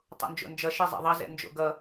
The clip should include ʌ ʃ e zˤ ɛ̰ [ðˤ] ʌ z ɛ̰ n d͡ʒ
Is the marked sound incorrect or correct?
correct